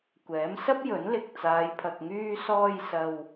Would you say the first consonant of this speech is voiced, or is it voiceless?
voiceless